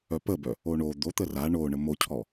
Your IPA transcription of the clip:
œ p ə b œ | o ɳ o d̪ o t̪ ə r a ɳ o ɳ ə m o cʰ ɔ

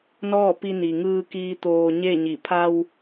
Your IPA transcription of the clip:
n ɔː˥˨ p i˧ n i˩ ŋ ɯː˧ k iː˧ t̪ oː˧ ɲ e˥˨ ɲ i˧˩ pʰ a˧ w

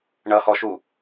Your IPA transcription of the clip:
ɳ ʌ h ɔ ʃ u

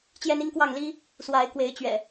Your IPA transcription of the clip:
t͡ɕ j ɛ˦ n i˦ ŋ k w ɑ˥˨ ŋ l i˦ | s w a˨˦ ɪ̯ k w e˨˦ ɪ̯ t͡ɕ ɥ ɛ̰˨˩

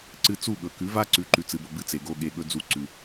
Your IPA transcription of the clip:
ǀ ɨ˧ t͡s u˦˨ ɠ ɵ˨ k ʉ˨˦ v a˦ ǀ ʉ˨˦ ǃ ʉ˨ t͡s ɨ˨ b o˨ b ɨ˧ t͡s e˨ ɡ o˧ ɠ e˨ ɠ ɵ˧ d͡z u˧ ǀ ʉ˨

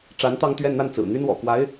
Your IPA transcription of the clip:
ʈ͡ʂ a˧˥ n t̪ ɑ˥˧ ŋ t̪ ɥ ɛ˥˧ n n̪ a˥˩ n t͡s ɹ̩˨˩ n̪ y˥ n w ɔ̰˨˩ k w a˧˥ ɪ̯

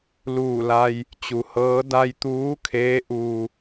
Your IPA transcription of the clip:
l uː˧˩ l a˧ j | t͡ɕ u˩ h ɤː˧˥ d a˧ j t̪ uː˧˥ kʰ eː˧˥ ʔ uː˧

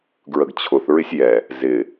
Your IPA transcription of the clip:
ɡ ɹ ə ɡ t͡ɕʰ ʊ θ ɹ ɪ sʲ j ɛ | z ɪ

